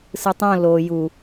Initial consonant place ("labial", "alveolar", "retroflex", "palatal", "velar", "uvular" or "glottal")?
alveolar